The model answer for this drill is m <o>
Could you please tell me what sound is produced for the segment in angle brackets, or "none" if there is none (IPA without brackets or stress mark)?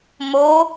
o